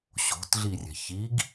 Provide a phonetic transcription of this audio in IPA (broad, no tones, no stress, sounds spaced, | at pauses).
ɕ o̤ t ɮ i rʲ ɛ̤ ç i ɡ